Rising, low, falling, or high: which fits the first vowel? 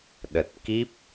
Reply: low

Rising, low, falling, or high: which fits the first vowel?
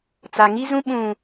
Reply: low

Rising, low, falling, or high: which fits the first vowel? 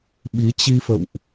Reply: rising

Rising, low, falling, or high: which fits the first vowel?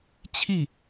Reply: falling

